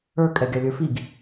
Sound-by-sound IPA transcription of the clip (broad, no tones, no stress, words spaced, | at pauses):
ə˞kʼɛ ɡʲalʲə˞fiɡ